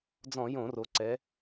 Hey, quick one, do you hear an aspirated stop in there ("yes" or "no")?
no